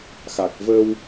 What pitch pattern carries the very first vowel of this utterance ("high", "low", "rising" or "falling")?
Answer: low